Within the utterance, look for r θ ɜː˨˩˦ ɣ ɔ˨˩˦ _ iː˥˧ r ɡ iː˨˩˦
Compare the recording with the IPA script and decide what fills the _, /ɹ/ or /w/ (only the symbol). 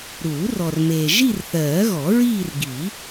ɹ